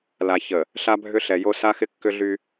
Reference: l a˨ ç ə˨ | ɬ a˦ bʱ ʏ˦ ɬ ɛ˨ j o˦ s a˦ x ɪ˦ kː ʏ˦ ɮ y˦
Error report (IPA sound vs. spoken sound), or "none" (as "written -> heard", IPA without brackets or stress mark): none